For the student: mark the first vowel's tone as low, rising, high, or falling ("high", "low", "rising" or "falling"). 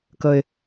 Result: low